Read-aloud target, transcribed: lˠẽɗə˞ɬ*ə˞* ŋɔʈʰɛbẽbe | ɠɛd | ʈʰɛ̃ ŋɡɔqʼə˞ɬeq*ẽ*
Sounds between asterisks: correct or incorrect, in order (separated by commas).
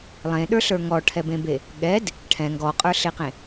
correct, correct